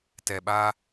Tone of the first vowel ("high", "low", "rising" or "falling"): low